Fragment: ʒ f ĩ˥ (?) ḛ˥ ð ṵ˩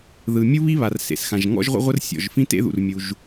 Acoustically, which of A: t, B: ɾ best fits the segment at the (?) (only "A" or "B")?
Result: A